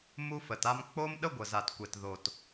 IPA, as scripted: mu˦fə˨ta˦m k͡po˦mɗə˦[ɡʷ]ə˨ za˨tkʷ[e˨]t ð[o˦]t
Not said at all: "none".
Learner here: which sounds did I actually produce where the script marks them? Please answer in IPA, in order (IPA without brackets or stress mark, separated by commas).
ɡʷ, e˨, o˨